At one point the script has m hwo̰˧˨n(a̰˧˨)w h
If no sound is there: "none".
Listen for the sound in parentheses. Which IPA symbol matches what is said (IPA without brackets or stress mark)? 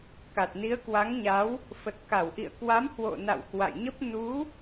a̰˧˨